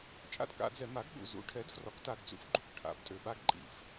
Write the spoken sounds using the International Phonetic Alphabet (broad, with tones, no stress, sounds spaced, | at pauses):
t͡ʃʼ a̰˦ d k a̰˧˩˧ d͡z ɛ˧˩˧ m a˩˥ ɡ ɠ ṵ˨˩ z ṵ˩˥ ʈʰ ɛ˩˥ d f r ɒ˩˥ k t a˨˩ ɡ d͡z ṵ˩˥ f ɡ͡ǃ u˨˩ k ʈʰ a̰˩˥ b tʼ ø˨˩ ɓ a˦ ɡ ǃʼ ḭ˧˩˧ f